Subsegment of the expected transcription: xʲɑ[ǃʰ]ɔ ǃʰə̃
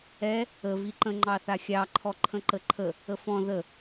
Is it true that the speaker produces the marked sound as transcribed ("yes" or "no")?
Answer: yes